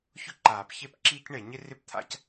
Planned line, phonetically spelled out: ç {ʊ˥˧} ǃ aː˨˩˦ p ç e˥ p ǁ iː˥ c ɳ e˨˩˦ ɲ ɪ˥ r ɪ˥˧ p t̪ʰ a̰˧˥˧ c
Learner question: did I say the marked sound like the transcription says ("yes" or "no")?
yes